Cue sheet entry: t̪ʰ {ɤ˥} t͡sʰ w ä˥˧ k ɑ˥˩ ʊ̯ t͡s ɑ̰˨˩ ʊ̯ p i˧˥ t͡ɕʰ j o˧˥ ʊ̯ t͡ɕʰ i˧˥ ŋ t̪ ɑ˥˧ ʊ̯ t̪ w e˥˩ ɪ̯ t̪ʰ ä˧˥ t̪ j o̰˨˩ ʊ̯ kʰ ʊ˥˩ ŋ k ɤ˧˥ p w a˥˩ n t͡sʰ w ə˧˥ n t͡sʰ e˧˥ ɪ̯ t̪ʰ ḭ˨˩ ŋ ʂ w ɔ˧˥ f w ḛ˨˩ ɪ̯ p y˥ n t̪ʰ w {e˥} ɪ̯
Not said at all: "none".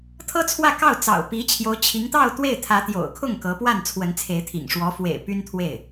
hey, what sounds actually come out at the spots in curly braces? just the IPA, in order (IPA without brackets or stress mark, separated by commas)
ɤ˥, e˥˩